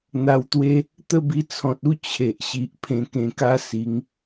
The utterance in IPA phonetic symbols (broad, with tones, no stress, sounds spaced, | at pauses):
n̪ a˧ w t̪ w e˦ | t̪ ə˥˧ b i˧ t͡sʰ ɔ̃˨ t̚ u˦ t͡ɕʰ e˨ ʔ ɕ i˨ ʔ pʰ ẽ˧ k ẽ˧ k a˦ s i˨˦ ŋ